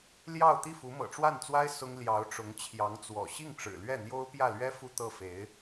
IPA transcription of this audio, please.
l j ɑ˥˧ ʊ̯ t̪ i˥˩ f u˧˥ m ɤ̰˨˩ ʈ͡ʂ w a˥˩ n t͡s w a˥ ɪ̯ s ʊ˥ ŋ l j ɑ˧˥ ʊ̯ ʈ͡ʂ ʊ˧˥ ŋ t͡ɕʰ j ɑ˧˥ ŋ t͡s w ɔ̰˨˩ ɕ i˥˩ ŋ ʈ͡ʂ ɻ̩˨˩ l ɥ ɛ˥˩ n̪ j o˥ ʊ̯ p j ä˥˩ l ɥ ɛ˥ f u˥˧ t̪ ɤ˥˩ f e˧˥ ɪ̯

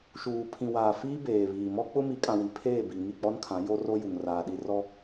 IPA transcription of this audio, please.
ʃ uː˨ pʰ ĩ˨ w aː˨ f iː˦ b eː˨ β iː˨ m ɔ˦ k͡p ʊ˦ m i˨˦ kʼ ã˨ w i˨ pʰ eː˦˨ b i˨ ŋ i˦˨ k͡p ɔ˦ n kʰ ã˨˦ j o˦ r o˦ j u˨ ŋ r aː˨ ɗ i˦˨ r ɔ˦

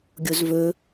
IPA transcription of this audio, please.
ɡʲ o z v ɵ

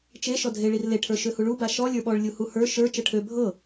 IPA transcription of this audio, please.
t͡ʃ e ʃ ɔ dʱ e ɭ i r l e ʈʰ ə˞ ʃ ø h u ɭ u b a ʃ ɔ lʲ ə˞ ɓ ɔ ɭ lʲ u h u h ə˞ ʃ ə˞ t͡ʃ ɤ ʈʰ ø bʱ ɤ

